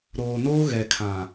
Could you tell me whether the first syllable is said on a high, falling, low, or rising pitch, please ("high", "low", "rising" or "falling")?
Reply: low